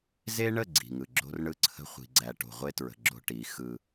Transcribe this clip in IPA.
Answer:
z e˦ ɳ ə˦˨ ɡ͡ǀ i̤˨ ŋ ɯ˨ ɡ͡ǁ o̤˦ r ɳ ɯ˦ ǀʰ ə̤˦ χʷ i̤˨ ɡ͡ǀ æ˨ ʈ o̤˨ ʁʷ e˦ t ɹ ə̤˨ ɡ͡ǁ o̤˦ ʈ i˨˦ x ɯ˦

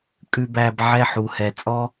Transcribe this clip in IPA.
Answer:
kʼ ʉ˦ b æː˧ b ʕ ɛ˦˨ ħ u˨ h ɛ˨ t͡sʼ ɔ˦

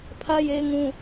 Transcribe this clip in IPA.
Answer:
pʰ ä˦ j e˦ ɪ̯ ŋ ũ˦

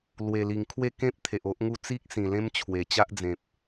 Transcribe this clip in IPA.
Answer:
l w e˨˩ l i˨˩ ŋ kʰ w e˥˧ k ẽ˦ p̚ t̪ʰ e˨ ʔ o˦ ʔ ŋ u˥˧ t͡s i˦ k̚ s ĩ˨˩ l ẽ˦ m t͡ɕʰ w e˨˩ t͡ɕ a˦ ʔ d͡z ẽ˨ p̚

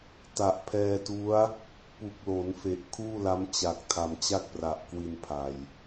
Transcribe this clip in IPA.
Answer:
t a˨˩ ʔ pʰ ɛː˧ t u˦˥ a̯ | p u˨˩ k̚ l o˩˦ n f e˨˩ ʔ kʰ uː˥˩ l a˦˥ m t͡ɕ a˨˩ k̚ tʰ a˨˩ m t͡ɕ a˥˩ k̚ p r a˨˩ ʔ k w i˧ n pʰ a˨˩ j

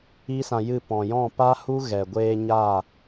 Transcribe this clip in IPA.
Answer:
i˦ s ã˧ j ɨ˦˨ p ɔ̃˨ j ɔ̃˦˨ p a˦ h u˦ ɣ ɛ˨ ɡʷ eː˧ ɲ a˦˨

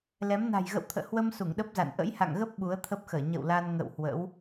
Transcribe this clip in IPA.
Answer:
l ɛ˨˦ m n a̤˨˩ j ɣ ə̰˧˨ w t̪ʰ ə̰ː˧˨ h w ə˧ m s u˧˩ ŋ ɗ ə˦˥ p̚ z a̰˧˨ n ʔ ə̰˧˥ j h a̰˧˨ ŋ ɣ ə˦˥ p̚ ɓ u˨˦ ə̯ t̪ʰ ə˦˥ p̚ x əː˧˩ ɲ ə̰˧˨ w l a˧ n ŋ ə̰˧˨ w h w ə̰˧˥ w

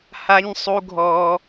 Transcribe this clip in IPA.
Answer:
h a˦ ɲ sˤ u˦ ɡʱ ɔ˦

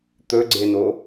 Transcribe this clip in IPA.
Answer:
t̪ ɵ ɡ͡ǀ e n o

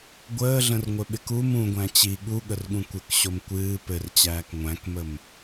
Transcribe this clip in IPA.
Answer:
ɡʷ əː ɮ ə̃ r ŋʷ ɘ ɓ ɪ k u m ũ ɡʷ æ̃ t͡ɕ i ɠ u ɠ ə r ɠ ũ kʷ ɘ k ɕ o m kʷ ɨː p ɘ r t͡ɕ æː k ŋʷ æ̃ k m ə m

